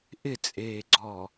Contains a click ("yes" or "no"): yes